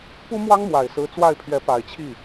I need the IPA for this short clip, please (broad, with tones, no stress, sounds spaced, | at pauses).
p u˥ m w ɑ˥ ŋ m w a˨˩ ɪ̯ s ɹ̩˧˥ t͡s w a˥˩ ɪ̯ pʰ ɥ ɛ˧˥ p a˨˩ ɪ̯ t͡ɕʰ i˥˩